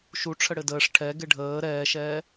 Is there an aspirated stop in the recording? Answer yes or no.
yes